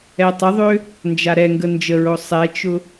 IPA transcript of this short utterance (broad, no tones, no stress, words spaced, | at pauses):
ɛtˤəðˤø | nd͡ʒaɾɛŋɡə nd͡ʒəɹo sˤɛt͡ʃʊ